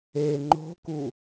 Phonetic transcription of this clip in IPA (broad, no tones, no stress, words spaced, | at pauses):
e ŋ͡ǃo̤ku